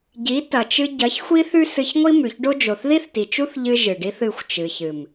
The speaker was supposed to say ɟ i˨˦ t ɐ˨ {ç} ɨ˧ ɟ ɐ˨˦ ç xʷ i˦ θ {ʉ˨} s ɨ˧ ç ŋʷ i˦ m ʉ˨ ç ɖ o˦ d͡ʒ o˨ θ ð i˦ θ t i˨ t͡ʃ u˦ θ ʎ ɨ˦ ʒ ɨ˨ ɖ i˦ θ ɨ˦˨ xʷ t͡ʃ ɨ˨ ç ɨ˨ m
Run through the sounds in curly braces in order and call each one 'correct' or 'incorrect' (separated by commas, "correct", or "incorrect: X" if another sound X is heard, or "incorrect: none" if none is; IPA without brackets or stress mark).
incorrect: t͡ʃ, incorrect: ʉ˦